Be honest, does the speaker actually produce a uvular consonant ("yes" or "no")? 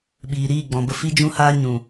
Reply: no